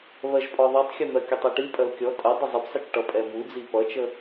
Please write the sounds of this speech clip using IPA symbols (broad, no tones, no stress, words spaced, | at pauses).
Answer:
βɜʒpʼɔðˤitˤxʲʌ n̪ɜkʲətˤɛʈi pʼɜlkʲɔ tʼə dˤəzˤəpsˤət͡ʃʈʌ pʼɛmud͡zi pʌt͡ʃə